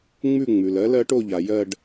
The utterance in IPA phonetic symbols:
ŋ͡m ʉ˥˧ ŋ͡m ʉ˩ l ɜ˨˥ l ɜ˨˥ ʈ o˥˧ ʎ a˩ j ɜ˥˧ ɖ

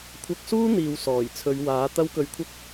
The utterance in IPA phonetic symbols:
kʷʰ ɐ˧ k̚ s uː˥ n̪ iː˨ w s ɔː˨˩ j t͡sʰ ɵ˨˧ ɥ w aː˨˥ t̪ ɐ˥ w k ɵ˧ ɥ kʷʰ ɐ˥ k̚

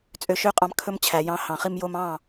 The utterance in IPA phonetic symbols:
t͡sʼ ø˧ ʃ ø˦ qʼ ɑ̃˧ m kʰ ɵ˦ m t͡ɕʰ æ˨ j ɑ̃˨˦ h ɑ̃˨ χ i˧ m j o˧ m ɑ̃˦˨

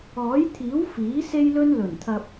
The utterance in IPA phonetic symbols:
ɔː˨˥ j t̪ʰ iː˨˥ w f iː˨˥ s e˥ j l ɵ˥ n l ɵ˨˩ n t̪ʰ ɐ˨ p̚

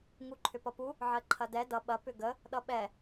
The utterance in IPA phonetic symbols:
ŋ u ǃʰ ʏ p ʌ p u | ʕ ɜ ǃʰ ɐ d ɛ d ʌ ɓ ɐ p ʏ ɡ ə | ɗ ʌ ɓ ɛ

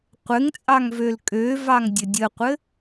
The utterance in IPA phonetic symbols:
qʷ ɘ ŋ t͡sʼ ɑ ŋ v ø l kʼ ø v ɑ ŋ dʲ ɘ dʲ ə qʷ ɘ

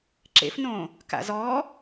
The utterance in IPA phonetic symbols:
ǁ ḛ f n õː | k a̰ z ɔː

